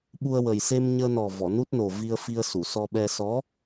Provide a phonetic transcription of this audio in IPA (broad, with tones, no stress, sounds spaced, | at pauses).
ɓ u˧ ə̯ w ə˨˩ j s e˧ m ɲ əː˧ n ɔ˨˩ v ɔ˨˩˨ n u˦˥ t̚ n o˨˩ v i˧ ə̯ f i˧ ə̯ s u˨˩˨ s ɔ˧ ɓ ɛ˧ s ɔ˧˥